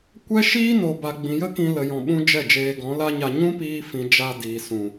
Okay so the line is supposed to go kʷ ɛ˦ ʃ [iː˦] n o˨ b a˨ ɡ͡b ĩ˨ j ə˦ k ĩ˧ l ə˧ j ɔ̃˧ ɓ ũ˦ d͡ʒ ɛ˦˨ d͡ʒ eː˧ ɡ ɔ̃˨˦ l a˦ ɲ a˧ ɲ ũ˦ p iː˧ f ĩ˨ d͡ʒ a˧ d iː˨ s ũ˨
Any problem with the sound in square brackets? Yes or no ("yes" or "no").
no